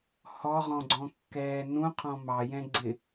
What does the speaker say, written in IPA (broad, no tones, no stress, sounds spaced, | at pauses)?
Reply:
h ɔ ʁ ɔ̃ ɡ͡ǀ ɔ̃ kː ɛː n ũ qʰ ɔ̃ m ɑ j ɛ̃ ɡ͡ǀ ɪ